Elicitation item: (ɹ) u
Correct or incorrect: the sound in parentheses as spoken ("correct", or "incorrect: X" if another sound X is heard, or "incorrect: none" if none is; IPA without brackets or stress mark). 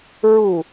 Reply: correct